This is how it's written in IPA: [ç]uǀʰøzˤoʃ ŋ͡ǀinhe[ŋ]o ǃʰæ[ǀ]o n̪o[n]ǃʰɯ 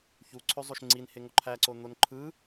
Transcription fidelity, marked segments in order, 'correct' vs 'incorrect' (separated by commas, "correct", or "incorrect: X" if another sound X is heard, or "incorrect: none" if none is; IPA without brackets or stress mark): correct, correct, correct, correct